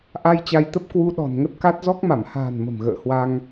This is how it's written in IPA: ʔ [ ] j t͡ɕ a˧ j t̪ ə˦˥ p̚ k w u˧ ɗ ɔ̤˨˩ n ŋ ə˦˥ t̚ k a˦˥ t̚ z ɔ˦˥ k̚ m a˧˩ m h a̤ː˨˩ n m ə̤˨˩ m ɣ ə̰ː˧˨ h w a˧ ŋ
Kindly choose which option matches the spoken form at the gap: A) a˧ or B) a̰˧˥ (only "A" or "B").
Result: A